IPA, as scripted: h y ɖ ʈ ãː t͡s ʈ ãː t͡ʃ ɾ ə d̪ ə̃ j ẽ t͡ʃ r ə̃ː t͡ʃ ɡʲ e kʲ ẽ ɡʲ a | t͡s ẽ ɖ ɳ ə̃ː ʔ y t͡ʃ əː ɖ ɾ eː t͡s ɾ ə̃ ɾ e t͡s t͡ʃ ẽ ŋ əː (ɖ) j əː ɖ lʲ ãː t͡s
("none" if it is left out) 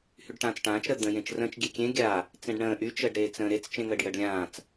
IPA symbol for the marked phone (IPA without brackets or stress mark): ɖ